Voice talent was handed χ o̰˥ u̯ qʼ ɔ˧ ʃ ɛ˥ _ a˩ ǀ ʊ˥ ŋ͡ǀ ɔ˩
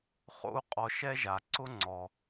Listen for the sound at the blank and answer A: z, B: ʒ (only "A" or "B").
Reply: B